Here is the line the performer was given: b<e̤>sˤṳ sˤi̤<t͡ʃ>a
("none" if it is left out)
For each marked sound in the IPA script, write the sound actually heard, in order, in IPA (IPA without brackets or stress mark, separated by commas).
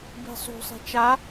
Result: i̤, t͡ʃ